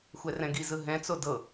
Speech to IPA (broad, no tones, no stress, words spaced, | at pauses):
xʷɛrɛ̃ɡi zɯɦɛ̃ t͡sodɤ